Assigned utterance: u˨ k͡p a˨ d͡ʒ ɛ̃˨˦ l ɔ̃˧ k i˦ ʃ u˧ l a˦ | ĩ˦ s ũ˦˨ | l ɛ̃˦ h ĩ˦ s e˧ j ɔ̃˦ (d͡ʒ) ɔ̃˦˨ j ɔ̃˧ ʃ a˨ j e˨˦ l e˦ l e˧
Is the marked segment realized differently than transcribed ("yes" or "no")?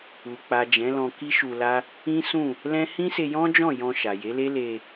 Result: no